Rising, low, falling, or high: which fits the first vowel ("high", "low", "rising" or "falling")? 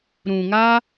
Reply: low